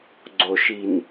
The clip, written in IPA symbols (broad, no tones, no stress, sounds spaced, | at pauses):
ɡ͡ǀ o ʃ i n